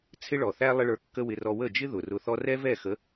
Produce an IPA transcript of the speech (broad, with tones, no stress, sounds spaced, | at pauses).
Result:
t͡sʰ ɪ˦ ɭ ɔ˨ θ æ˦ lˠ ɪ˦ ɭ ə˞˧ kː ə˦ w ɪ˧ r ɔ˧ w ə˦˨ d͡ʒ ɪ˦ ð ʊ˨ r ʊ˧ θ ɔ˦ r ɛ˦ v ɛ˦˨ x ə˨˦